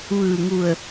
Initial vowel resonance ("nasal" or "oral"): oral